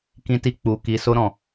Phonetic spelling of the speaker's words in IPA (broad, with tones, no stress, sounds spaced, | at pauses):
k ĩ˦ t i˦ k͡p u˧ k i˧ s o˦ ɾ ɔ̃˦˨